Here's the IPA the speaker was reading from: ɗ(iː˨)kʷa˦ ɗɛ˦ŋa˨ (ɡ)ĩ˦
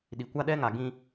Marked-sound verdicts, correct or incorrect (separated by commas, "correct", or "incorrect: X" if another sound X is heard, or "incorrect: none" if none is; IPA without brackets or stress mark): incorrect: i˨, correct